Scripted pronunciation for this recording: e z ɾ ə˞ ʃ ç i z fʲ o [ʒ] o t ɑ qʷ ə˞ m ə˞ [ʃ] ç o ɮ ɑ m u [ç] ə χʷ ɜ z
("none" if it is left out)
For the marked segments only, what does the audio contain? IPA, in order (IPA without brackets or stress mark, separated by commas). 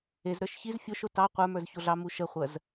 ʃ, z, ʃ